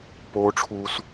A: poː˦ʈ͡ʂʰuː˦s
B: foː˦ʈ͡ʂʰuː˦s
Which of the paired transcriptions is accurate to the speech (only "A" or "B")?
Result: A